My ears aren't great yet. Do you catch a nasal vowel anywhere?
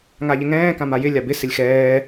yes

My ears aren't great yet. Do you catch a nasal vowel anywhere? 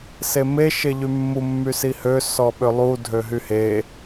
no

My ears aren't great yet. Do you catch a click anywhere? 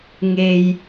no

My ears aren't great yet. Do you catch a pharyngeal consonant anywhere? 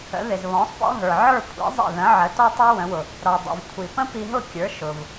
yes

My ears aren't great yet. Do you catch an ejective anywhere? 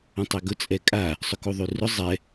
yes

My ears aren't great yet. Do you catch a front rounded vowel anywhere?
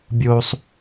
no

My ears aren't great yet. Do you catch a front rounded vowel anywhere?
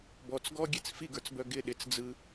yes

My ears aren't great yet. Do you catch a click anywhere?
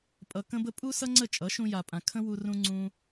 yes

